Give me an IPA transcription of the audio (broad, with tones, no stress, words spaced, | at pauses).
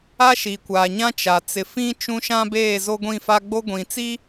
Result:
a˦ʃi˨kʷaː˨ɲã˦ t͡ʃa˨ t͡sɪ˨fĩ˦ t͡ʃũ˦ʃã˦beː˦˨ zo˦ɡʷĩ˦˨fa˦ ɡ͡bo˦ɡʷĩ˨t͡si˦